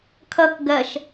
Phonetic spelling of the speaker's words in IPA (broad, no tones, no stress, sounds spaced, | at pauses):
kʰ ʌ k ɡ ɜ ʃ